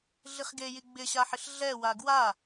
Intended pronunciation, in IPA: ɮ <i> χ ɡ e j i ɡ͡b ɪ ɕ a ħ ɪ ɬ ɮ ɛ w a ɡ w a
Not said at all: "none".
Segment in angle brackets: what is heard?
i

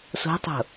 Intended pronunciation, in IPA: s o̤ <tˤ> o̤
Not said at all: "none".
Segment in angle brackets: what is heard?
tˤ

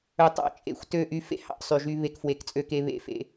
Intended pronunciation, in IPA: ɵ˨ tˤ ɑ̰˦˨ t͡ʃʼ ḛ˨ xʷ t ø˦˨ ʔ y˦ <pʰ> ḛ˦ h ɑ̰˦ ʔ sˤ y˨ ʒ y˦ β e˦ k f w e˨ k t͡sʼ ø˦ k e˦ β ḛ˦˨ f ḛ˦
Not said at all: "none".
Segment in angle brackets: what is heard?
f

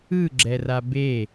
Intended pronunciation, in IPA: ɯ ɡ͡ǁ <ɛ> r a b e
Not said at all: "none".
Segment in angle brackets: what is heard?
ɛ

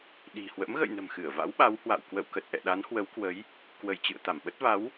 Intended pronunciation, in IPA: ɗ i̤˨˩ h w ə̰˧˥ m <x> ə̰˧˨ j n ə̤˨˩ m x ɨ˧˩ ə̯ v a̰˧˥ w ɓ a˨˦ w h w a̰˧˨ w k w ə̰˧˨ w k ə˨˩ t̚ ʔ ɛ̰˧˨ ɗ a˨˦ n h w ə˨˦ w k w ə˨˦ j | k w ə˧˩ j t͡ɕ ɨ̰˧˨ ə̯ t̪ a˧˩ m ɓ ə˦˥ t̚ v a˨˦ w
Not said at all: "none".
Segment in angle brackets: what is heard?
ɣ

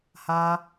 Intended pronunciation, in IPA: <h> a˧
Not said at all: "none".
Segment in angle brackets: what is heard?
h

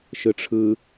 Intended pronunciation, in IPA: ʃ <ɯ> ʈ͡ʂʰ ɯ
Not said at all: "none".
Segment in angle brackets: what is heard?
ɯ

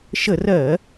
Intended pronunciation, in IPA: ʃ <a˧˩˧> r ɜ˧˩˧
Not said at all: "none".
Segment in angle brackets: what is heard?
ə˧˩˧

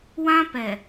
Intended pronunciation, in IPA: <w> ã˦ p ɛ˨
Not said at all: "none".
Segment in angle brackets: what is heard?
w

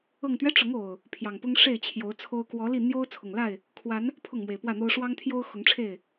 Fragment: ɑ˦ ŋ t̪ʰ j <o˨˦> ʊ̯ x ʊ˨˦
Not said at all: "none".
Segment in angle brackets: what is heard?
o˦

